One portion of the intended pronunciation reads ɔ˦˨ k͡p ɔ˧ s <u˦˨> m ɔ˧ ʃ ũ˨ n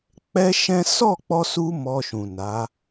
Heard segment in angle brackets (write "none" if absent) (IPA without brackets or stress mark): u˧